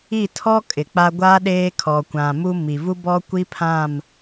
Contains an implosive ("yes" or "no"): yes